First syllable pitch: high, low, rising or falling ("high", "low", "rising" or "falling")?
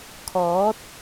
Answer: rising